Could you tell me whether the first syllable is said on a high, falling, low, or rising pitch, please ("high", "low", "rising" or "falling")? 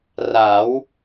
rising